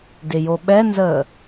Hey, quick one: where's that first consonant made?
tongue tip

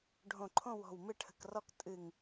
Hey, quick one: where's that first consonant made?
retroflex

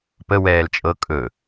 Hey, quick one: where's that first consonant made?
lips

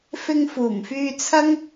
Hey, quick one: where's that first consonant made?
lips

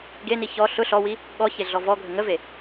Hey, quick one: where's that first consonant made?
velum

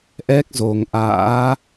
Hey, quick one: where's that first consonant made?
throat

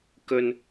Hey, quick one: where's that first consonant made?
velum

